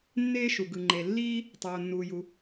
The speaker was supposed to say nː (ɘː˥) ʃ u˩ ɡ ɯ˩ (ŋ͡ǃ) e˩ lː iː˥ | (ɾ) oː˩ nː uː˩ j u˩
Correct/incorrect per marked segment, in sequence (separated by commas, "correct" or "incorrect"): incorrect, correct, incorrect